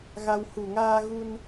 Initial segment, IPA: ɣ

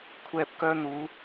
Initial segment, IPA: kʷʰ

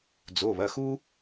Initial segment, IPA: d͡z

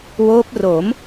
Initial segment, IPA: w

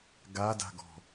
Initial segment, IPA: ɡ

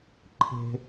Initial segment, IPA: ǃʰ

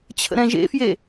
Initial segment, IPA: t͡ɕʰ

